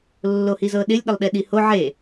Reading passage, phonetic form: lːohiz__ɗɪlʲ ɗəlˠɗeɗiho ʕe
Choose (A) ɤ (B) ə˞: A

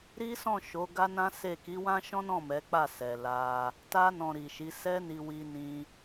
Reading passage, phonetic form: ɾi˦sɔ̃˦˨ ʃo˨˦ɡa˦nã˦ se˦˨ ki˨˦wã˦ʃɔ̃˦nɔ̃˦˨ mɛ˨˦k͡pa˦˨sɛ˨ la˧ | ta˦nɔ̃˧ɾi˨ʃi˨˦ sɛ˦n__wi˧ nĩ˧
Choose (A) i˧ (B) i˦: A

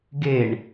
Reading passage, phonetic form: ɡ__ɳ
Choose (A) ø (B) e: B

